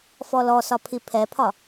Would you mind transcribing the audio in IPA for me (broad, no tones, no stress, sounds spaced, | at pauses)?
f ɔ l ɔ s ɒ pʰ i pʰ ɛ pʰ ɒ